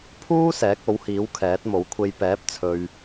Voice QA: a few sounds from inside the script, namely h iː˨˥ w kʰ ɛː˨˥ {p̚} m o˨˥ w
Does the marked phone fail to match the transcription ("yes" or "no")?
yes